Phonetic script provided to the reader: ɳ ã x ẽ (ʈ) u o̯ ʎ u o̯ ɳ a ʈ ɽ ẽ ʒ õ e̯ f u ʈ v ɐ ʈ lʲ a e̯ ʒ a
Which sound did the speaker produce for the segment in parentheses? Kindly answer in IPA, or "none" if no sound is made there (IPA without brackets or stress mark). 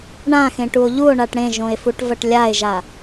ʈ